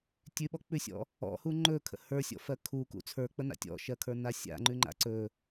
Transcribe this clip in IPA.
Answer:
tʲʉɓɔk͡pʉsʲɔ̰ | ɔ̰hu ŋ͡ǃɵkʰə̰ hə˞sʲɔ̰fɜ kʰukṵ t͡sʰə˞k͡pəna̰ tʲɔ̰ʃɜkʰə˞na sʲa̰ŋ͡ǃʉŋ͡ǃa̰ ǀɵ

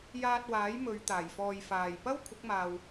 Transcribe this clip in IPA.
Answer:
jaː˧t̚waː˨˥j mɵ˨˧ɥ t̪aː˨˩jfɔː˨j faː˨˩j pɐ˥w kʷʰɪ˨˥k̚maː˨w

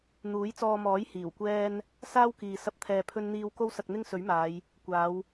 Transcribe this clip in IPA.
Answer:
n̪uː˨˥jt͡sɔː˧mɔː˨˥j hiː˨˩wkʷɛː˥n | saː˥wkiː˨ sɐ˥p̚t̪ʰɛː˧pʰɵ˥nn̪iː˥w ko˥wsɐ˧k̚n̪ɪ˥ŋ sɵ˨˥ɥmaː˨˧j | kʷaː˨˧w

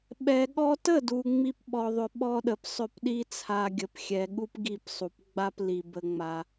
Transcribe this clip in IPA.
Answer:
ɓɛ˨ɠɔ˧tə˦˨du˨ ŋ͡mi˦pɓɔ˧ðˤʏ˧ ɓɔ˦ɗə˨p sˤʏ˦˨pɗi˦ t͡sʰa˧ɡʲə˨pxʲɛ˨ ɠu˦pɡi˦˨psˤu˨p ɡ͡ba˦pli˨bə˧ŋ͡ma˧

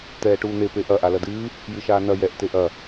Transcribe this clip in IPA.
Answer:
t̪ɛːʈuːn̪e peʔɐ ʔalɐdɨː | jɨʃaːnɐ jɛʔ teʔɐ

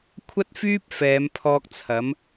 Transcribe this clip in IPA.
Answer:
kʷʰɐ˥t̚fyː˥p̚ fɛː˨˧mpʰɔː˧k̚ t͡sʰɐ˨˥m

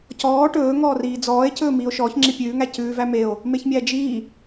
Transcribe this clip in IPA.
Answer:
cɔː ʈɵːŋɔːriː d͡zɔːe̯cɵː miːo̯ʃɔːç ŋ͡ǁipʲʉːŋæ cʉː væmeo̯ | meçmʲæd͡ʒiː

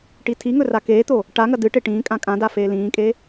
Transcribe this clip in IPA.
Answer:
ʈitʰiŋɵ rakeːt̪o | ʈaŋɐ dɨʈe ʈĩː kʼãkʼãda feːlĩːkʼe

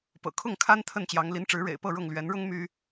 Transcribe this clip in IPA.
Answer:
pɤ̰˨˩kʰʊ˥˨ŋkʰa˦n t̪ʰə˥˨nt͡ɕjɑ˨˦ŋ li˨˦nʈ͡ʂɻ̩˨˦ ɻḛ˨˩ɪ̯pɤ˥˨ɻʊ˥˨ŋ lɥɛ˨˦nɻʊ˦ŋ my˦

